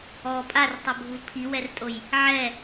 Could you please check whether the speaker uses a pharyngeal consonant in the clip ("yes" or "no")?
yes